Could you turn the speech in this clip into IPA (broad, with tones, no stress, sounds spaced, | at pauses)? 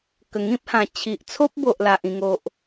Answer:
k ə˨˩ ŋ ĩ˦ p̚ h ã˨˩ t͡ɕʰ i˨ ʔ t͡sʰ o˦ p̚ b o˨ ʔ l a˨ ʔ ĩ˨˩ ŋ o˨ ʔ